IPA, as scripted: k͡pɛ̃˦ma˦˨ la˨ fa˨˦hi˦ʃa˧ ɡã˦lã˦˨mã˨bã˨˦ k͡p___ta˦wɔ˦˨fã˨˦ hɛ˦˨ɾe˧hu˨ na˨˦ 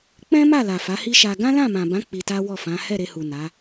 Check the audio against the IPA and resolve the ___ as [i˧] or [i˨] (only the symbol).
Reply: i˧